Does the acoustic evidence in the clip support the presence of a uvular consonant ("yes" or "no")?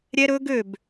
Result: no